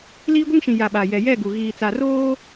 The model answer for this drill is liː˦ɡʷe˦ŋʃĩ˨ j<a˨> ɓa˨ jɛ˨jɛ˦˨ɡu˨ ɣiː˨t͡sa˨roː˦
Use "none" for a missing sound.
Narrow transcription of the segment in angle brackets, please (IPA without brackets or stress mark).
a˨